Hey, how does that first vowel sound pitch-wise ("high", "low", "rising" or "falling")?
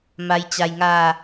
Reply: low